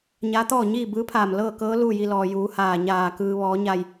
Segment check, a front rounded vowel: absent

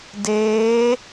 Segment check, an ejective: absent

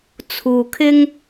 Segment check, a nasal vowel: absent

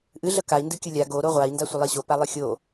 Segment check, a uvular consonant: present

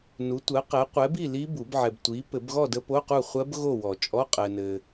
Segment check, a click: absent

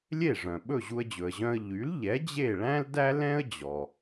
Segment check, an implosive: present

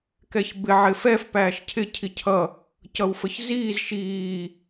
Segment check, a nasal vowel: absent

